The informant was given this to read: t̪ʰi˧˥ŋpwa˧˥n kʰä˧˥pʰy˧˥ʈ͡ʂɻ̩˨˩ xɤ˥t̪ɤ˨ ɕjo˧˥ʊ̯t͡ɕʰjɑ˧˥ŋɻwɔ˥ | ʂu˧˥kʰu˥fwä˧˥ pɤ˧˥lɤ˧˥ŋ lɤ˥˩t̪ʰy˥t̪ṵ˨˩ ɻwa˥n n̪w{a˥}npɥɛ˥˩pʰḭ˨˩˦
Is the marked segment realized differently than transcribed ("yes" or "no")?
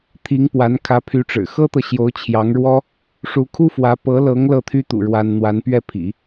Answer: yes